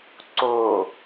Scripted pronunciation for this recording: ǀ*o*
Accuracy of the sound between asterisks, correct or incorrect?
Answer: correct